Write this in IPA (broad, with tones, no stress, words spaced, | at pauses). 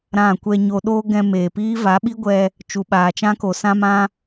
ɾã˦˨ kʷɛ˧ɲo˧ɗoː˦ ɡɛ̃˧meː˨piː˦ va˨˦ɓi˦ɡʷɛ˧ | t͡ʃu˨ɓaː˨t͡ʃã˦ko˨ sã˦mã˦